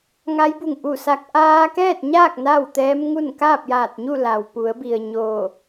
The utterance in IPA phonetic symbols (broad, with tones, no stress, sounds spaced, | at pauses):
ŋ a˧˥ j b u˧˩ ŋ ʔ u˧˩ s a˧ k̚ ʔ aː˧ k ɛː˥˨ t̚ ɲ aː˥˨ k̚ n a˥˨ w t̪ ɛː˧˥ m ŋ u˥˨ n k aː˥˨ p̚ j aː˧˩ t̚ ɲ u˥˨ l a˩ w p u˩˧ ə̯ b i˩ ə̯ ɲ oː˧˩